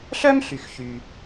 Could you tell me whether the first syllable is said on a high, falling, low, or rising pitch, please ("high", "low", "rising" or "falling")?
high